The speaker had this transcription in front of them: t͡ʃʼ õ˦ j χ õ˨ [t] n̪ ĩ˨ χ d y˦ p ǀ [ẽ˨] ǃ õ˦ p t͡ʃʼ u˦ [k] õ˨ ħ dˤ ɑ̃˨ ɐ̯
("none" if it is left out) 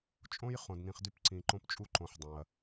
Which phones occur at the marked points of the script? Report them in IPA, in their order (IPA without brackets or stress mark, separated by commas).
d, ĩ˨, ǃ